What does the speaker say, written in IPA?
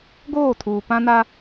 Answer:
ɡ oː˦˨ tʰ uː˨ p ã˦ n a˦

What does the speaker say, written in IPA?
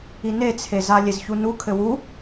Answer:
i n e t͡sʰ e z a lʲ e z ç u n u kʰ ɘ w u

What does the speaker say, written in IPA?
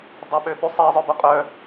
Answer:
dˤ ɛ ɓ ø ɓ y sˤ i zˤ œ b u qʼ œ

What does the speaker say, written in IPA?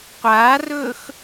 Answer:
qʷ aː r ɵː x

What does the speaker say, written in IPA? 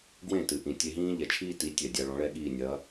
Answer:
ɡ w ẽ˥˩ t ɨ˩ ʔ ĩ˩ tʲ e˧ ɦ ĩː˥ ʎ ɛ˩ t͡ʃʰ iː˥ t i˩˥ tʲ ɛ˩ dʲ a˧ ɭ ɔ̃˩˥ ɭ ɛ˥ ɠ iː˥˩ nʲ ɐː˩˥

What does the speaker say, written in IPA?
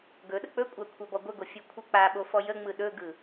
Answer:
ɡ ɵ ɗ ə k͡p ɵ kʷʼ a kʷʰ a b ɔ ɡʷ ə ɡ o fʲ ɵ kʷʰ ɯ k͡p a ɓ o f ɔ j ə ŋ͡m ɯ ɗ ɵ ɡ ɯ

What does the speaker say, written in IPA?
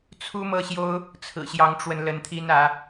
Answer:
t͡sʰ u˥ m ɤ˥˩ ɕ j o˥ ʊ̯ | t͡sʰ ɹ̩˨˩ ɕ j ɑ˧˥ ŋ ʈ͡ʂ w ə˧ n l ə˧˥ n t̪ʰ i˥ n ä˧˥

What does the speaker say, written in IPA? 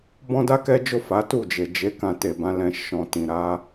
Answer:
b ɔ̃˦ d a˦ k ɛ˦ d͡ʒ o˦˨ f a˨˦ t u˦˨ d͡ʒ e˨ d͡ʒ e˨˦ k ã˧ t e˨ b ã˨˦ l ɛ̃˧ ʃ ɔ̃˨ t ĩ˨ ɾ a˧

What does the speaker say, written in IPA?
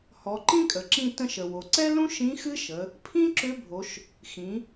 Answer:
h ɔ˩˧ ǃ ĩ˥ kʼ ə˩ ǁ ĩ˧ t ə̃˧ ʃ ə˩ w o˩ ǀ ɛ˥ l ũ˥ ʃ ĩ˧˥ x ɨ˥ ʃ ə˩˧ | pʰ ĩ˥ ǁ ʏ˧˥ bʱ o˩˧ ʃ | x ĩ˩˧

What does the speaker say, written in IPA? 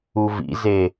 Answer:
u v ḭ z e

